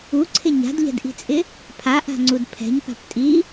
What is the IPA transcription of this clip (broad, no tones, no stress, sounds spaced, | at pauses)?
u ǀʰ ɪ ɲ a̤ d ʎ ɛ̤ d ʔ i̤ t͡sʼ ɪ | pʰ a ʔ a̤ ŋ͡ǀ u d pʰ ɛ̤ ɲ p a̤ p tʼ i